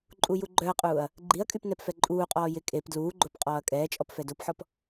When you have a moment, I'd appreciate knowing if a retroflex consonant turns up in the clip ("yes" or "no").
no